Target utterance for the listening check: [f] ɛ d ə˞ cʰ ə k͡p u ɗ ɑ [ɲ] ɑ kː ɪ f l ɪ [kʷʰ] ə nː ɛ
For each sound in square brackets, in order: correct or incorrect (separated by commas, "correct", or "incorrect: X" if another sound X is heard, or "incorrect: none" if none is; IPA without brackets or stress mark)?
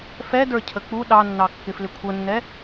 correct, incorrect: nː, correct